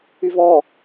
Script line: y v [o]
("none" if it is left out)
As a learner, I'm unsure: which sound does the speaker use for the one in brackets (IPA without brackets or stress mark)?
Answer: ɔ